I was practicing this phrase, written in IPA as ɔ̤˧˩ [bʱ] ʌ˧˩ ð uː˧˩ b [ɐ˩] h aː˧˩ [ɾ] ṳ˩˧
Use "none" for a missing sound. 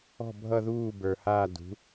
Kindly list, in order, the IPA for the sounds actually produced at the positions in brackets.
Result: bʱ, ə˞˩, d

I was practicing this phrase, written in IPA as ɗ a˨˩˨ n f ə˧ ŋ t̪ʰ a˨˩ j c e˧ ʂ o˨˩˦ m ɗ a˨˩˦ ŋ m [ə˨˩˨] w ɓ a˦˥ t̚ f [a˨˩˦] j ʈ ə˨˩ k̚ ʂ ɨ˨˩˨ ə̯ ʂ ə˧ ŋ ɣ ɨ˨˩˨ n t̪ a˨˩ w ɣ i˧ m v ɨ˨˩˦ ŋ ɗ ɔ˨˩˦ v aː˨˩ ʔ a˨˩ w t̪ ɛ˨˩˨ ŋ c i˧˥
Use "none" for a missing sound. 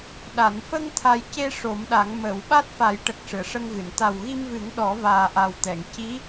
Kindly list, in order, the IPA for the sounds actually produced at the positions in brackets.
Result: ə˨˩˨, a˨˩˦

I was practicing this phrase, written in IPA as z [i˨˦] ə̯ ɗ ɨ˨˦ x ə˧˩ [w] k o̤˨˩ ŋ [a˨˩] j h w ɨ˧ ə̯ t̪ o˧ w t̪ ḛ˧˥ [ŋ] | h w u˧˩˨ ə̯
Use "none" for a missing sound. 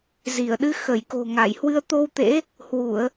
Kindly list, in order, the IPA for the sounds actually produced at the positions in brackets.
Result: i˧˩, j, a˧˩, none

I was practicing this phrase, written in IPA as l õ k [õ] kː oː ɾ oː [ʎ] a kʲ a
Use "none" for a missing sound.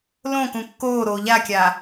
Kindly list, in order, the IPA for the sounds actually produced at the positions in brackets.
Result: ũ, ʎ

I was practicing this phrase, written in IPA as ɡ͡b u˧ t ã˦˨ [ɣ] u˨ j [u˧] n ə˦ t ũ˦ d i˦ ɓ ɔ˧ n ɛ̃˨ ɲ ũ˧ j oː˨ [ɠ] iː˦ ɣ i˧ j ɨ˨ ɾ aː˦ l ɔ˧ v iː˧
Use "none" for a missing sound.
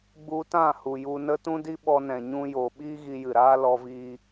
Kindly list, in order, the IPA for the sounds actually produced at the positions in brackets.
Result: h, u˧, ɓ

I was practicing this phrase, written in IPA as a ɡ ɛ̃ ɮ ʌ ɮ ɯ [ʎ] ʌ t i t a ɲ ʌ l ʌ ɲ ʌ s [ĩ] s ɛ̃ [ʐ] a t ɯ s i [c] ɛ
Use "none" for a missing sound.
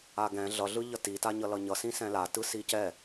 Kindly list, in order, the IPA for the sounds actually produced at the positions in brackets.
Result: ʎ, ĩ, l, c

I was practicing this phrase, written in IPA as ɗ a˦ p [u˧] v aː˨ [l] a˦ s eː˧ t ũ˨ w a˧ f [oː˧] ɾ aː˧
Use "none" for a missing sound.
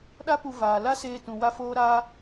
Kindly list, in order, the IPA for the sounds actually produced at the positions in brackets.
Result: u˧, l, oː˧

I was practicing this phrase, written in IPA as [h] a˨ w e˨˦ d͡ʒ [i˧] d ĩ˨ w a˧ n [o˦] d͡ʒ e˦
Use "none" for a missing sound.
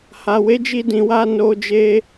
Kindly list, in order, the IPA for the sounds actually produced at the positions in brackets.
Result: h, i˧, o˧

